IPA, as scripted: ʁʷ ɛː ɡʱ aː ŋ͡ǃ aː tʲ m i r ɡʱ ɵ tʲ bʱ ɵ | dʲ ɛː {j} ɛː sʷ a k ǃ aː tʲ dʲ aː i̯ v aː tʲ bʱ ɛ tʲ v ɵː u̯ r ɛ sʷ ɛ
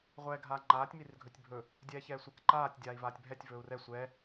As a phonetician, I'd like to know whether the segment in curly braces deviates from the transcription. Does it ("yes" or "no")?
yes